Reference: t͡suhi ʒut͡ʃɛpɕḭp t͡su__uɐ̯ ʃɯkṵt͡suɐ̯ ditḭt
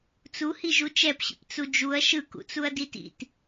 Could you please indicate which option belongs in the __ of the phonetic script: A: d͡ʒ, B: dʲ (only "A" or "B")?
A